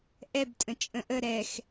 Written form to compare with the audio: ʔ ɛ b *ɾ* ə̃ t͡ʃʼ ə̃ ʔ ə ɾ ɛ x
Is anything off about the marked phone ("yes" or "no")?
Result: yes